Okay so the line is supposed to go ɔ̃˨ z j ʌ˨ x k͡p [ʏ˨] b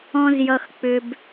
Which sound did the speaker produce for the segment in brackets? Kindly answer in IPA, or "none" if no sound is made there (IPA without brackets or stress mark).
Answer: ʏ˨